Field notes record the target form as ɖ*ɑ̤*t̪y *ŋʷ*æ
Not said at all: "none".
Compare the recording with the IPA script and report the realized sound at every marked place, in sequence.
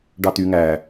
ɑ, ŋ

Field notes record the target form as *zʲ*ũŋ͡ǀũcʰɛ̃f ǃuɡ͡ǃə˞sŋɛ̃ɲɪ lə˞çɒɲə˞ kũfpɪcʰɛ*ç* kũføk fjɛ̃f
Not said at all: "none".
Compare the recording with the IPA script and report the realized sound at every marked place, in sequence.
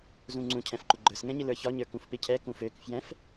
z, none

